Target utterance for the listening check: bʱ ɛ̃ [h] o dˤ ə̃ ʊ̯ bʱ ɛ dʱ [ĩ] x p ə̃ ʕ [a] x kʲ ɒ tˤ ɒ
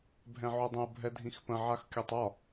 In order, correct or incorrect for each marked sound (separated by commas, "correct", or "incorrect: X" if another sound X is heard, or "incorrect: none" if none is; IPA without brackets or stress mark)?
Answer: incorrect: ʕ, correct, correct